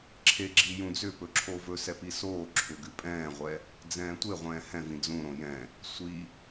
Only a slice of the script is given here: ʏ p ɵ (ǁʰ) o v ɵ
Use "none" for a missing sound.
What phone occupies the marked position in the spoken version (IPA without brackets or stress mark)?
ǁʰ